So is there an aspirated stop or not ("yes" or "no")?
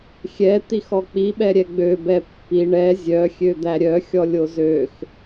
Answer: no